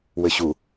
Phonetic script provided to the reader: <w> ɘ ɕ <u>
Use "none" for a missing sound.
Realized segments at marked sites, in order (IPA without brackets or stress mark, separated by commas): w, u